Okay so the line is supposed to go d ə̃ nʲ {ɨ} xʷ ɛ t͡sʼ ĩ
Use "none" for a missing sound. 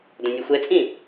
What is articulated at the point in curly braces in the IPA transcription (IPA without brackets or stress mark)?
ɨ